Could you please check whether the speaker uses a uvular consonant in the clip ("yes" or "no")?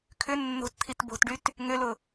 no